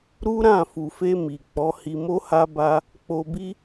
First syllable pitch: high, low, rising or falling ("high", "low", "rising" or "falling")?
high